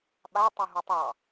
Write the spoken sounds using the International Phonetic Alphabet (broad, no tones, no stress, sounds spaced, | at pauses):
ɓ a tˤ u ɦ u tˤ ɑ